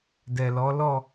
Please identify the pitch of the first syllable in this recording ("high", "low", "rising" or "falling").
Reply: low